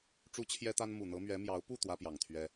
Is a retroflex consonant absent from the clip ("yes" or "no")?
no